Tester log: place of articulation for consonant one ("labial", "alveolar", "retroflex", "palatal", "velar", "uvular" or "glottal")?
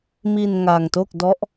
labial